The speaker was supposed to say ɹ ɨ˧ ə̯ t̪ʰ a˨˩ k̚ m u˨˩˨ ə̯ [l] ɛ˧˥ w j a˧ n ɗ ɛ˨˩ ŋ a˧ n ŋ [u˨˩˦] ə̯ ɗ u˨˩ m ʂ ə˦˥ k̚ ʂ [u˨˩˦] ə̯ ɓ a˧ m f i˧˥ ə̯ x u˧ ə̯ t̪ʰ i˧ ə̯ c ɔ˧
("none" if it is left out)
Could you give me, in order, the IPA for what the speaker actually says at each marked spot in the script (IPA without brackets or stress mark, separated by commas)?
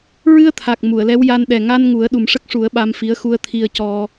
l, u˨˩˦, u˨˩˦